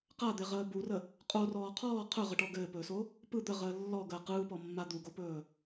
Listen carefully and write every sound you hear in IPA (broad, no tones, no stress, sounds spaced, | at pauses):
q a d̪ e ʁ əː b u r ə | qʼ o r ɔː qʰ ɔː qʰ ɵ ʁ ə ʈ ɔ ɡ ɘː p ɵː s o | p ɯ d̪ ə ʁ əː lː ɔ ɡ əː q ɯː p ɔ mː a d̪ u ɡ o p ɵː